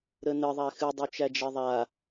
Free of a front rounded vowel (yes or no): no